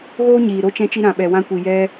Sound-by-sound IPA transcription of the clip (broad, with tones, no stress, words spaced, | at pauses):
ɣoː˦ɲiː˨ ɾo˧t͡ʃɛ̃˧t͡ʃi˧ ɾã˨ɓɛ˨wã˧kʷi˨ jɛ˧